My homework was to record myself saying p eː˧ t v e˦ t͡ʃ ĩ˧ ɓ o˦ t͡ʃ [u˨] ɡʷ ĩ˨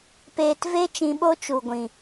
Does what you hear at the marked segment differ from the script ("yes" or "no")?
no